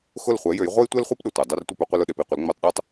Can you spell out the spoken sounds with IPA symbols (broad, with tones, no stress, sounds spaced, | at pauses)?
x ʊ˥˩ l χʷ ɛ˩˥ j ø˩˥ j ʁʷ œ˥ j tʷ ɛ˥ l χʷ e˥ p ɗ ʊ˩ tʷ œ˩ dˤ œ˥˩ r tʷ ɪ˥˩ p ʊ˩˥ qʷ ə˧ l ʊ˥˩ ɗ e˥˩ p i˥˩ qʷ ə˩˥ l ŋ͡m ø˧ tˤ ɗ u˥ tˤ